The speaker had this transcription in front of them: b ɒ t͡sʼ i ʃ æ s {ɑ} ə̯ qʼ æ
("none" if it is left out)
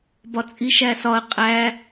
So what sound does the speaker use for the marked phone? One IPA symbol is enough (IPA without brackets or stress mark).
ɒ